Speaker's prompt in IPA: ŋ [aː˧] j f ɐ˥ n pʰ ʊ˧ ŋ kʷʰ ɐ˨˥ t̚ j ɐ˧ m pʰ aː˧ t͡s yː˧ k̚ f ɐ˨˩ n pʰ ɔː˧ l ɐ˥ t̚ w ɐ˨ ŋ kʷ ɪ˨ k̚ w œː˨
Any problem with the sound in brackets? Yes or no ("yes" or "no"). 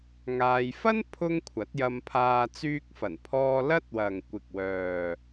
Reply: no